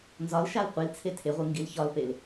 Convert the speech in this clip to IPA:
nzɒlʃal qʷilt͡sʰe tʰeʁʷɯ ŋɡilçɒlpel

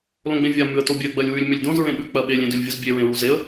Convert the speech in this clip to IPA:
lõɡ͡bẽvʲa mʉə̯tobʲɜ ɡ͡bɜlʲwʉlʲ mʏlʲdõz ɹẽɓʉ k͡pɜɓelʲ ẽdʉlʲvʲuzbʲe ɹẽɹuzeə̯

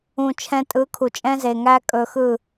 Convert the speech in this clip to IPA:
ũ˨t͡ʃʰɛ̃˧tʼɯ˨˦ kʰu˨t͡ʃʼɛ̃˦ze˨ ŋæ˦ kʼɵ˧xɯ˦˨

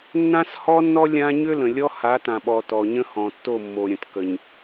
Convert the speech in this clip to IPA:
nːã˦shɔ˦nːɔ˦ lʲã˦ ɲʏ˦lə̃˨lʲɔ˦ha˨˦ tã˨ɓɔ˨ tɔ˨ɲə̃˦hɔ̃˨tːo˦˨ mːo˨ɾʲə̃˨t kə˨ɲ

